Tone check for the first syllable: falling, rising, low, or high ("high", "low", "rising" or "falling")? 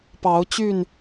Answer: rising